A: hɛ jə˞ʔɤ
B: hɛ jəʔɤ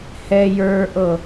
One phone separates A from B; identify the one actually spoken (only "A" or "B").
A